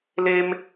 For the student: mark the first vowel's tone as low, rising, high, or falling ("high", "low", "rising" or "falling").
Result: high